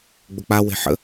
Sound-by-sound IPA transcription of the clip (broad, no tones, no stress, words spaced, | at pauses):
ɡ͡bʊk͡pawe̤ ħə̰